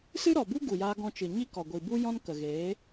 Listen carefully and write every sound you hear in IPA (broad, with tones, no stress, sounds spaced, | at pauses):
s ɨ˦ ɾ ɔ˨ b u˦ ɡ u˨ j aː˧ ɡ ɔ̃˧ t͡ʃ ɨ˨ ɲ i˦ k ɔ˨ ɡʷ i˨ b u˦ j ɔ̃˦ n k ə˨ ɣ eː˨˦